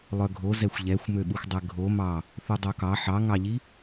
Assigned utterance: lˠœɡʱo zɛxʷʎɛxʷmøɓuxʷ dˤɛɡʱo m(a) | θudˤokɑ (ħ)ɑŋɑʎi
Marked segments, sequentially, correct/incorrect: incorrect, correct

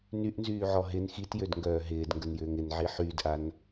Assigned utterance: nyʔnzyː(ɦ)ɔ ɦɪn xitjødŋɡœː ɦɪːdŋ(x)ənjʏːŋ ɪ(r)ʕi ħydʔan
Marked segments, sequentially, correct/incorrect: incorrect, incorrect, incorrect

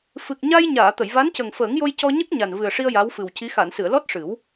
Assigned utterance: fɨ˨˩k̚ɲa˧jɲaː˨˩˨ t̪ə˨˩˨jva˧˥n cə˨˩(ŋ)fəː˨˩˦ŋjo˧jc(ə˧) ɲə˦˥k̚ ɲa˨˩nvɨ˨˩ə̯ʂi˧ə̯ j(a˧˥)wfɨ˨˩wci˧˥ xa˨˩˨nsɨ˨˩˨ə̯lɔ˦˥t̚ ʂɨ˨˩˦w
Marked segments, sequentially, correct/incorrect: correct, incorrect, correct

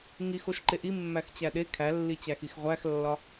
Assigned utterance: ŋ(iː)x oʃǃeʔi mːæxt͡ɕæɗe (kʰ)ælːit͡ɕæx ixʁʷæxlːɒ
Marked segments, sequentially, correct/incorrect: incorrect, correct

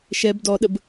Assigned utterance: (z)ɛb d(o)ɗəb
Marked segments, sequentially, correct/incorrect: incorrect, incorrect

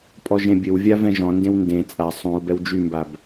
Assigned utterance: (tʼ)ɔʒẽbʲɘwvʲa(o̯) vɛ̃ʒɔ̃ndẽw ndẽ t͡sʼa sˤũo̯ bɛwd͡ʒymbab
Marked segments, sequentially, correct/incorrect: incorrect, incorrect

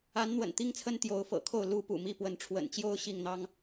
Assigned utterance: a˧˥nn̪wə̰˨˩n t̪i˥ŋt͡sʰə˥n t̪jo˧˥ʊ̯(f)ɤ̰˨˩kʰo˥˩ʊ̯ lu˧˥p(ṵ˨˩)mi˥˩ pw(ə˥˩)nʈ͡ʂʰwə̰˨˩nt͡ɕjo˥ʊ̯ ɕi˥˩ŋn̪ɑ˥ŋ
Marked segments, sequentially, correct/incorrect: correct, correct, incorrect

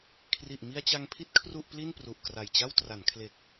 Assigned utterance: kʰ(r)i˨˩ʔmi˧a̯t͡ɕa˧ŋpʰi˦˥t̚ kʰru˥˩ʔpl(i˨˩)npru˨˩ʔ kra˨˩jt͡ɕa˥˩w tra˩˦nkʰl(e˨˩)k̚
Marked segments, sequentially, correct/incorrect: correct, incorrect, correct

